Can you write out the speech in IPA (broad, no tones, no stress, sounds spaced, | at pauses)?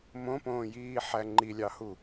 m õ p õː j iː ħ æ ŋ͡ǃ i lʲ ɑ h u